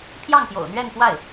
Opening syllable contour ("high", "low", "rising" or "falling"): falling